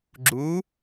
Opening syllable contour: rising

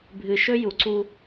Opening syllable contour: low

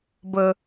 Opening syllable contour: low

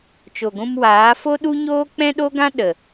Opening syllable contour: low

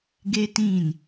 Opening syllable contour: high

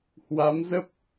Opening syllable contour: rising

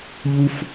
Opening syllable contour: high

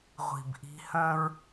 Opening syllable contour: low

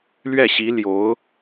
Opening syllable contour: falling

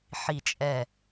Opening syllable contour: low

